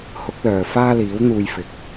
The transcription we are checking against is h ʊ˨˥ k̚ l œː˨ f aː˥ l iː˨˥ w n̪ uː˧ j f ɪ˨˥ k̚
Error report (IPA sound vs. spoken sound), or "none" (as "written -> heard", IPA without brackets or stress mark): none